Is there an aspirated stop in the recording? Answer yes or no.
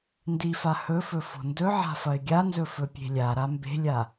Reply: no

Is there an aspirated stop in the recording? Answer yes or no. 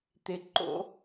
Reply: no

